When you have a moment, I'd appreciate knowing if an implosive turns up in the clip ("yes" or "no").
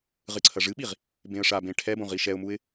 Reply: yes